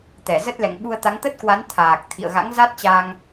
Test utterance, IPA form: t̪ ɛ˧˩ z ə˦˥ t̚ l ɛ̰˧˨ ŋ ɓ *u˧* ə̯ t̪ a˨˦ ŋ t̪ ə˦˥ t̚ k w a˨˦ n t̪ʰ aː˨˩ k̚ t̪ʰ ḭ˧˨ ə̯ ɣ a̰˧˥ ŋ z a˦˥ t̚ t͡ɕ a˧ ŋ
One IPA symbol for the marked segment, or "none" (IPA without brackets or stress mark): u˧